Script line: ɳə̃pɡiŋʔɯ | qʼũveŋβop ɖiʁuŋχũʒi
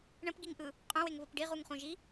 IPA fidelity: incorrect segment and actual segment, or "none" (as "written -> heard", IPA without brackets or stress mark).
v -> w